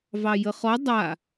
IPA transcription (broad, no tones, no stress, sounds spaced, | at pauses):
v ɑ j ə χ ɔ dˤ a